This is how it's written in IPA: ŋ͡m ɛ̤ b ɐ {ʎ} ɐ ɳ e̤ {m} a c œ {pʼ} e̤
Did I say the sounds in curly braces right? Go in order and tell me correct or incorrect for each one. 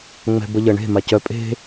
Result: correct, correct, correct

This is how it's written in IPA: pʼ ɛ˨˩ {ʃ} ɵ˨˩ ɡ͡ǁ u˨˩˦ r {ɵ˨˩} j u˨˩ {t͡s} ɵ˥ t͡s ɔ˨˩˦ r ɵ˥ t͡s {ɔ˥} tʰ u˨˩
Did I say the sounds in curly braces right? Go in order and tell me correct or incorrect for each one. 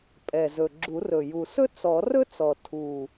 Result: incorrect, correct, incorrect, incorrect

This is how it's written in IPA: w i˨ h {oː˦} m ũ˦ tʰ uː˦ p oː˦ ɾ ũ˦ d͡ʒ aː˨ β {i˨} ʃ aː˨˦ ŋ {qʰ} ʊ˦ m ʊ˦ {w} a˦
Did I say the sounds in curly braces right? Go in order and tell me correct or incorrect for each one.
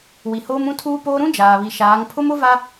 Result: correct, correct, incorrect, incorrect

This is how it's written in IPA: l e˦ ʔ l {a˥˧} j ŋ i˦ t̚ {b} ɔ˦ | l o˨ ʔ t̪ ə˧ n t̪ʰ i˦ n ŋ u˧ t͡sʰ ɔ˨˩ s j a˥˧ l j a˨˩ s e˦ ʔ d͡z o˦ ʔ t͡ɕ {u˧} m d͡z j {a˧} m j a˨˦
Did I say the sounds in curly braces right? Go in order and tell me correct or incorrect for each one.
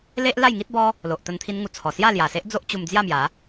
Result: correct, correct, correct, incorrect

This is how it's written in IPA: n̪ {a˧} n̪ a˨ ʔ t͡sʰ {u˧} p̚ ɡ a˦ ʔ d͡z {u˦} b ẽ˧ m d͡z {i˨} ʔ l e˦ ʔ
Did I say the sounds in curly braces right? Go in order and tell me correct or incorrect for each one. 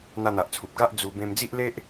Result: correct, incorrect, incorrect, incorrect

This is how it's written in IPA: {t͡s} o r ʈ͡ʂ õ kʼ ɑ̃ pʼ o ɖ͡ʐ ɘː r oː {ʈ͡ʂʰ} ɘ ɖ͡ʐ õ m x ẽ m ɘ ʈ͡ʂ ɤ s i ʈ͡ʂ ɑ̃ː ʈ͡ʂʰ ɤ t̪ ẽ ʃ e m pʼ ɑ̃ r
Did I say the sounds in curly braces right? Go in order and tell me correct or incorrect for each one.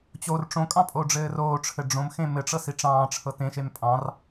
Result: incorrect, correct

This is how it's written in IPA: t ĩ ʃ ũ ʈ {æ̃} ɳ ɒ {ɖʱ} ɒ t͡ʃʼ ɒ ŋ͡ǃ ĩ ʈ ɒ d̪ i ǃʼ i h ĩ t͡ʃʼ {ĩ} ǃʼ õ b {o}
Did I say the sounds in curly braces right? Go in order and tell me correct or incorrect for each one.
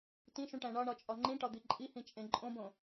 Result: correct, incorrect, incorrect, incorrect

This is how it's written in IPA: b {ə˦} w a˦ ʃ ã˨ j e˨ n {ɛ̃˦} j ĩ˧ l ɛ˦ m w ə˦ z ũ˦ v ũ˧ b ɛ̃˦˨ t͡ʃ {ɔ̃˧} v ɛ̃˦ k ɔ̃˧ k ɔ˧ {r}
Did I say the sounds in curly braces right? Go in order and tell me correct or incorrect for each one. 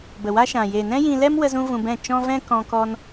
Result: incorrect, correct, incorrect, incorrect

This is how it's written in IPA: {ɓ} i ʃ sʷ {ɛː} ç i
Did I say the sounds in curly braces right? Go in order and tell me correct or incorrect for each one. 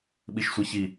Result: correct, incorrect

